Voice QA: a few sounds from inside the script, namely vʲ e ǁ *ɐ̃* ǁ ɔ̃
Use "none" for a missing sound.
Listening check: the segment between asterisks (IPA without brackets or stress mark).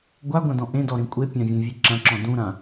ɐ̃